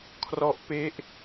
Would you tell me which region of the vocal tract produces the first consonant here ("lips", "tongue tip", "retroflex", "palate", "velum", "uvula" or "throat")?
velum